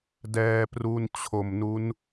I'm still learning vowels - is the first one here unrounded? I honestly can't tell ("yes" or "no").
yes